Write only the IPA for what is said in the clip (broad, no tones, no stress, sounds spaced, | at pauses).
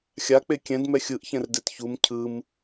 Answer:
xʲ a k͡p e kʲ ɛ̃ d m ɛ xʲ ɯ ʔ ç ɛ̃ r d e t ç u m cʰ ɯ m